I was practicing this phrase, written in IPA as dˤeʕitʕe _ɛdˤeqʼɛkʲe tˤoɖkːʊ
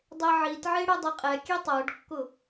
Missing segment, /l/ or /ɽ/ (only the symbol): ɽ